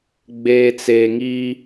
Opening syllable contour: low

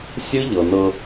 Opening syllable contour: high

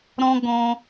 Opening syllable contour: high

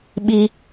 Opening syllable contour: high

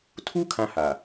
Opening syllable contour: high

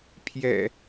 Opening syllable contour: low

